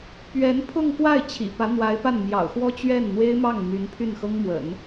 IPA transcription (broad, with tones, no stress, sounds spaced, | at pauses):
p ɥ ɛ˧˥ n pʰ ʊ˥˧ ŋ k w a˥˩ ɪ̯ t͡ɕʰ ḭ˨˩ p ä˧˥ n̪ w a˧˥ ɪ̯ p a˥˩ n m j ɑ̰˨˩ ʊ̯ x w ɔ˥ t͡ɕ ɥ ɛ˥˩ n n̪ w e˥ ɪ̯ m ɑ˥˩ ŋ m y˧˥ n pʰ y˥˩ n x ɤ˥ ŋ m w ə̰˨˩˦ n